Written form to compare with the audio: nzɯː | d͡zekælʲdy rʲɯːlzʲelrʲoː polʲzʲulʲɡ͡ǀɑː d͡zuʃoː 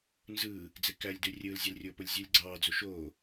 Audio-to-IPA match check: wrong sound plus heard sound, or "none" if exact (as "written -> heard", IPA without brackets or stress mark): none